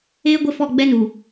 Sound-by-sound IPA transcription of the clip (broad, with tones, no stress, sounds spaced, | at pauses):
eː˦ ɡʷ ɪ˦˨ f ɔ˦˨ ɡ͡b ɛ˦ n u˨